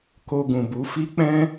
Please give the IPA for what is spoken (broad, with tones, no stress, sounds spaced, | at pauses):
k o˧ ɡ ũ˨ b u˨˦ f i˦ k͡p ɛ̃˦